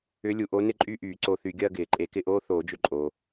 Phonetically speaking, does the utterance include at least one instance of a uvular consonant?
no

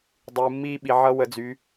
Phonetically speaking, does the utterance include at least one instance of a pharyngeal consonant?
yes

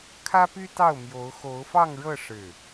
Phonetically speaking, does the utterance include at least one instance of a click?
no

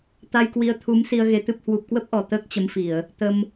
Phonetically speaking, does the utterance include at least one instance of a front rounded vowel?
no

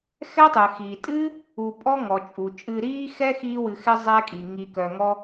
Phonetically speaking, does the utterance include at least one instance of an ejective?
yes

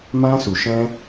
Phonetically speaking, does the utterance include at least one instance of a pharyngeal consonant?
no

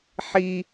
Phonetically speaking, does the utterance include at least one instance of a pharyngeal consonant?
yes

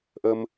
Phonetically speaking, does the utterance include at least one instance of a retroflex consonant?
no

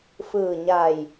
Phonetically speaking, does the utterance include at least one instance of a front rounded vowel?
no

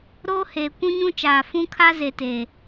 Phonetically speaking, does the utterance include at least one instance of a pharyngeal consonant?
no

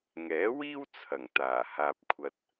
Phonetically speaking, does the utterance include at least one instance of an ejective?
no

